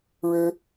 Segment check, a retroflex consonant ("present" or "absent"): present